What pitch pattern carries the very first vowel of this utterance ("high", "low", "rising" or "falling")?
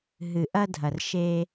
low